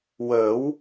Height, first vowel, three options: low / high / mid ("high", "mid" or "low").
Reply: mid